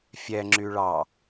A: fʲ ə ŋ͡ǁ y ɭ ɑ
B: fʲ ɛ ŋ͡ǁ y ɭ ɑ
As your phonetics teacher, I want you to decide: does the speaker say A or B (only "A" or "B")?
B